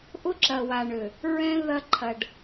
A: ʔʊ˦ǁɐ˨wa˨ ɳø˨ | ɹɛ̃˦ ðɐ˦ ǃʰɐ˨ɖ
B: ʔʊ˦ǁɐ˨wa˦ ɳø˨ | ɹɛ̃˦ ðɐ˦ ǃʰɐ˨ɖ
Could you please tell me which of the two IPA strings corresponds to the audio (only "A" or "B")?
A